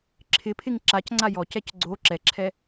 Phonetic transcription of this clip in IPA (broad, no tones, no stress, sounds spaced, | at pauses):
ǁʰ ɪ pʰ ɪ ŋ ǁ a c ŋ͡ǀ a j ɔ c ɛ c ɡ͡ǀ o ǁ ɛ ǁʰ ɛ